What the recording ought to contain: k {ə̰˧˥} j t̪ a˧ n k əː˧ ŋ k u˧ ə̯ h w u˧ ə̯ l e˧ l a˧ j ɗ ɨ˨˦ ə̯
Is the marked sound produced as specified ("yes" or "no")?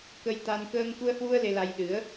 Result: no